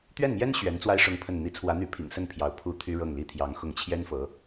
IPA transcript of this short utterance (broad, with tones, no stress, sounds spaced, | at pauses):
t̪ ɥ ɛ˥˩ n m j ɛ˥ n ɕ ɥ ɛ˧˥ n t͡s w a˥ ɪ̯ ʂ ʊ˥ ŋ pʰ ə˥˩ n n̪ i˧˥ t͡sʰ w ä˧˥ n̪ y˧˥ pʰ ḭ˨˩ ŋ s ə˥˩ n pʰ j ɑ˧˥ ʊ̯ pʰ u˥ t̪ʰ y˥ ɻ ɤ˥˩ ŋ l i˥ t̪ʰ j ɑ˧˥ ŋ x ʊ˧˥ ŋ t͡ɕʰ j ɛ˥ n f ɤ˧˥